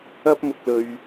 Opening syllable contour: high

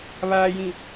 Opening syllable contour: low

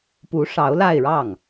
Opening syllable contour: rising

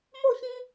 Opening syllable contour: falling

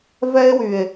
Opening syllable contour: high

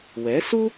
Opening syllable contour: rising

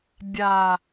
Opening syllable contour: low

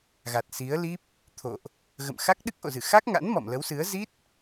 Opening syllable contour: low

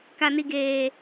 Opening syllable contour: high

